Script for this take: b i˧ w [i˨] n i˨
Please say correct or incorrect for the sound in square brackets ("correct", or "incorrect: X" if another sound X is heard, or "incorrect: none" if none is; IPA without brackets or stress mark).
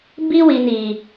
correct